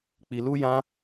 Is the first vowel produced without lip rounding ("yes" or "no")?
yes